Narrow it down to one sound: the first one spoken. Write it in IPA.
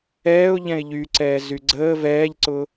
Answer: ɛː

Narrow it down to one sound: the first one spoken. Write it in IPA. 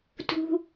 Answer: t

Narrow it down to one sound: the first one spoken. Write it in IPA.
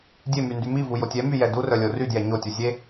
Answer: dʲ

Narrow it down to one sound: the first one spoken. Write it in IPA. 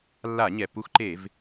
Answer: lː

